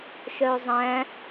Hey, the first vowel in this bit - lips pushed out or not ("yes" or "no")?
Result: yes